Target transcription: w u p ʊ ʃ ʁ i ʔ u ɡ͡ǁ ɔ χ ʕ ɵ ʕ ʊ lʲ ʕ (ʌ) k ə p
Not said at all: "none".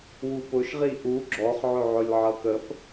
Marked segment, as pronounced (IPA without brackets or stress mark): ʌ